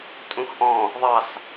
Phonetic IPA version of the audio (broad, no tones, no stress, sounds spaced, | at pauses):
tʼ ũ x ʔ ɔ̃ | ðˤ ɑ s